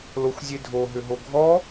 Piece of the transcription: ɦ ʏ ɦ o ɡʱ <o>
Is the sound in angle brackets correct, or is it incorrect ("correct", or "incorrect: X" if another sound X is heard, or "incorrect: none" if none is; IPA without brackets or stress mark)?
incorrect: ɔ